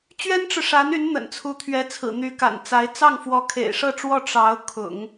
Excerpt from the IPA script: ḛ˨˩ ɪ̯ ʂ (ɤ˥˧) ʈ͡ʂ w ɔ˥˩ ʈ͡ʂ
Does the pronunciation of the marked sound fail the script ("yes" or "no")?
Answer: no